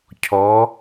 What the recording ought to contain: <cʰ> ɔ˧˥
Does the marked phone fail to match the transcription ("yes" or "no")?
no